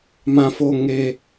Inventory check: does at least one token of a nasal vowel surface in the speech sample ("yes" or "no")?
yes